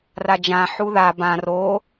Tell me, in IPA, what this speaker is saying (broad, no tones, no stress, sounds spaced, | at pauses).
r a d͡ʒ ã ħ u ð a b ã r oː